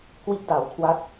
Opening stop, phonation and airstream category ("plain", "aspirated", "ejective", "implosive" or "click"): plain